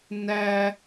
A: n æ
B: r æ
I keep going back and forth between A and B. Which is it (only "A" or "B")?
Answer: A